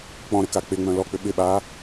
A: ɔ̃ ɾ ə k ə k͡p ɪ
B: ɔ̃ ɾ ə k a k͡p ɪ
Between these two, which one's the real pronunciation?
B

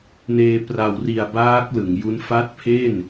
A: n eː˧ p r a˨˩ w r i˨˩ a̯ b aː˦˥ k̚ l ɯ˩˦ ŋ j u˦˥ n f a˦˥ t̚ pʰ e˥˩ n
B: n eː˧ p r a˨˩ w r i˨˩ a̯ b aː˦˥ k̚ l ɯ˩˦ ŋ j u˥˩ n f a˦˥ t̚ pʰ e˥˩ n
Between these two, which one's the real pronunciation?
A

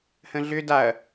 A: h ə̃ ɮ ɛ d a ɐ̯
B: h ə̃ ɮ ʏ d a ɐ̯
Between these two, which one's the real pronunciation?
B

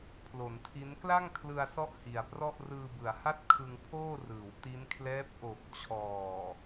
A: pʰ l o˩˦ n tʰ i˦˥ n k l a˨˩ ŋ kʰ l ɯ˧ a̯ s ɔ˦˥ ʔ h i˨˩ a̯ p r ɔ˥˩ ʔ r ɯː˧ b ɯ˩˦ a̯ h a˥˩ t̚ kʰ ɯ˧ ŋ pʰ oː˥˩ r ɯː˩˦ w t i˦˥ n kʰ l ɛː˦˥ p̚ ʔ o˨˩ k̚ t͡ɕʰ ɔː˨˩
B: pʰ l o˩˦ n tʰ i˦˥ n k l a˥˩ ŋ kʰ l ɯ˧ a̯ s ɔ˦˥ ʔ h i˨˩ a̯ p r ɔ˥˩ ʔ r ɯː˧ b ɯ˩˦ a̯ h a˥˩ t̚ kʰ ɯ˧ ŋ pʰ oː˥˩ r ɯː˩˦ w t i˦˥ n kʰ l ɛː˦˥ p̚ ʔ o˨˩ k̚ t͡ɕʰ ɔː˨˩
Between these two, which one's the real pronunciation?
B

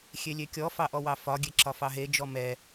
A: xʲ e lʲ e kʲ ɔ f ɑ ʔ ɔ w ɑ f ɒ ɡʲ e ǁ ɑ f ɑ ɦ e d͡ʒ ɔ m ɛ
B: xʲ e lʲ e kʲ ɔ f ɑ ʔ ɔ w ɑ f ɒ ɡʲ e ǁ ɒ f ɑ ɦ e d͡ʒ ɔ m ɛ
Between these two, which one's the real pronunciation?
B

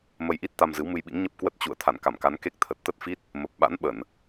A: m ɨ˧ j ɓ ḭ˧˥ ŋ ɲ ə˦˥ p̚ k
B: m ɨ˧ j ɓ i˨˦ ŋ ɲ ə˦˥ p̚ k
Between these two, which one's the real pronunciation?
A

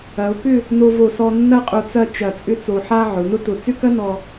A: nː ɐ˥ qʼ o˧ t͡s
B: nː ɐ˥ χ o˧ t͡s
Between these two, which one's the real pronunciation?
A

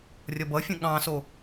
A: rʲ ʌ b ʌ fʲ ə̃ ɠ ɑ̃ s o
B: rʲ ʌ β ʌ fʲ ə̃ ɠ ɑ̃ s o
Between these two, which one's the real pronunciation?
A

